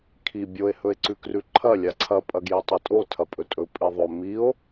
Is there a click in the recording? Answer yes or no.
yes